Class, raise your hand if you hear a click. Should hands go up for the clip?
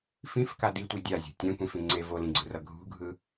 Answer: yes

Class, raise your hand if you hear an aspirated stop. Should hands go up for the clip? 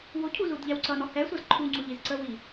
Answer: yes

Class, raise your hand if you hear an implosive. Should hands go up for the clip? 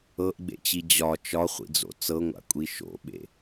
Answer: yes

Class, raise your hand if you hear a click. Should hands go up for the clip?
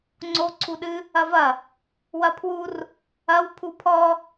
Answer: yes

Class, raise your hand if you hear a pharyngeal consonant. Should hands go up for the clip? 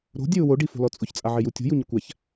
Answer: yes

